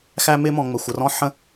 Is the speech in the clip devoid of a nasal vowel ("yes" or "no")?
no